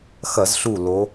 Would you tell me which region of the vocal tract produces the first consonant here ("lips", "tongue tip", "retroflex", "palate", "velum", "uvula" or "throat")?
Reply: velum